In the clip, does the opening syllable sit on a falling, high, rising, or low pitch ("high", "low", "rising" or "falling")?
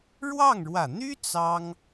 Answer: falling